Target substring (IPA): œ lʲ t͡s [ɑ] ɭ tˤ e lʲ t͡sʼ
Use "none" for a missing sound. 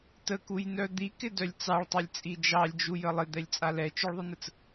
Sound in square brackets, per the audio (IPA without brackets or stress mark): ɑ